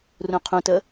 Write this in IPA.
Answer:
r ũ qʰ ũ t ə

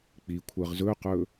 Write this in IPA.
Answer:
k͡p i kʷʰ ɜ ʁ z ɵ q ɵ

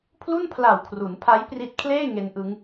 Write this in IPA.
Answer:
pʰ l u˥˩ n pʰ l a˨˩ w kʰ r u˩˦ n pʰ a˦˥ j p r i˦˥ t̚ kʰ l eː˥˩ ŋ e˦˥ n ʔ ɯ˦˥ ŋ

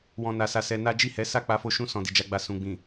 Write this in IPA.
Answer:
w ɔ̃˧ n a˧ s a˧ s ɛ˧ n a˦ d͡ʒ i˦˨ h ɛ˨˦ s a˦˨ k͡p a˧ f o˧ ʃ ũ˦ s ɔ̃˧ d i˨ d͡ʒ a˧ ɡ͡b a˧ s ũ˨ ɡ͡b ĩ˨

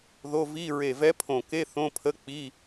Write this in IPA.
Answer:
ð o˧˥˧ v i˧˥˧ ɹ e˧˩ v ɛ˧˥ pʰ õ˧˩ k e˧˥˧ θ õ˧˥˧ pʰ ə˧˥˧ k͡p i˧˥˧

